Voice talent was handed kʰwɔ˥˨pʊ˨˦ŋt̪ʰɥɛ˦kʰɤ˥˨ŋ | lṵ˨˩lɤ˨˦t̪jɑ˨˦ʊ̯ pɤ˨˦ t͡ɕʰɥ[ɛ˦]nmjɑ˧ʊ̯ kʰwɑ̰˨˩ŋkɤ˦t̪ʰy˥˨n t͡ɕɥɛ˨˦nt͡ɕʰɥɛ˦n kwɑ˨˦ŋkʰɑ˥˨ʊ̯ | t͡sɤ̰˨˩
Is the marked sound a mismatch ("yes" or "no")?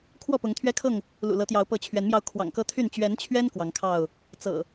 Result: yes